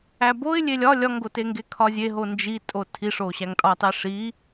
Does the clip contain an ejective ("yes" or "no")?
yes